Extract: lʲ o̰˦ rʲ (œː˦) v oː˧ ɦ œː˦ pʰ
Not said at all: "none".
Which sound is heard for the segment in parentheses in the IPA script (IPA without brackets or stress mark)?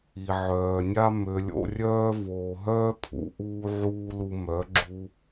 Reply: œː˦